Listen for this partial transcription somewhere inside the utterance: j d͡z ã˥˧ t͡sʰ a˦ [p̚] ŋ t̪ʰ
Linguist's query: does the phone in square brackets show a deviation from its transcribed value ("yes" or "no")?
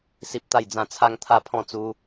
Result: yes